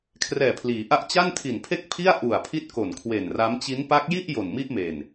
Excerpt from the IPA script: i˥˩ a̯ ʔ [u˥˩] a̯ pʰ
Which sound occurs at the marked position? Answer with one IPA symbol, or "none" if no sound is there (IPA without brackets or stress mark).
u˨˩